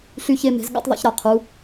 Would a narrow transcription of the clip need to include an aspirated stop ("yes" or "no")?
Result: yes